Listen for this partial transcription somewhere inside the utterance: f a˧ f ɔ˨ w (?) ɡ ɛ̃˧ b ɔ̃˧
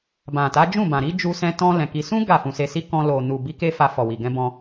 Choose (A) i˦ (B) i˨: B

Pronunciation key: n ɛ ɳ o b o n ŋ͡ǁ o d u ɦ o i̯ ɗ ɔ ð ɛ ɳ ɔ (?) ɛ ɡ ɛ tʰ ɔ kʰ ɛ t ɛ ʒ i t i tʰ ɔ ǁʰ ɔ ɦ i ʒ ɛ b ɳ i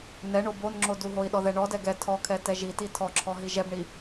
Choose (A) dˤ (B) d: B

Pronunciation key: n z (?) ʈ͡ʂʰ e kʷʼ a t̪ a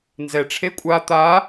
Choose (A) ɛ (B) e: A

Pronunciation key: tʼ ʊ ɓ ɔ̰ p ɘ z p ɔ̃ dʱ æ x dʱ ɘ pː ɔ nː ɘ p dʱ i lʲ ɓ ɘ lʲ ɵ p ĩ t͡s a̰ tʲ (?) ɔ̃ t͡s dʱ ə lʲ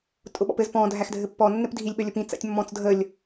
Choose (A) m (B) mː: B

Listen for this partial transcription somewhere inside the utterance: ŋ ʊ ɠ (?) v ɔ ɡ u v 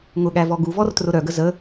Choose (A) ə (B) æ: B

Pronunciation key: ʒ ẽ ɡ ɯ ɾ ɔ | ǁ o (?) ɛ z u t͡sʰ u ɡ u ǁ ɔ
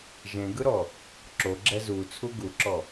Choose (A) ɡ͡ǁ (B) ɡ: A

